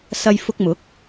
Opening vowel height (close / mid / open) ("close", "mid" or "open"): open